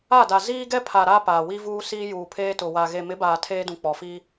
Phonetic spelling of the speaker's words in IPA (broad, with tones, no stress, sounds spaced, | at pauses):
a˦˨ d a˨ z iː˦ ɡ ɛ˦ pʰ a˨ ɾ a˦ p aː˨ w i˦ v uː˦ s iː˦ j uː˨ pʰ eː˦ t ʊ˨ w a˨ ɣ e˨ m ɪ˨˦ b aː˨ tʰ eː˦ d ũ˨ k͡p ɔ˨ f i˦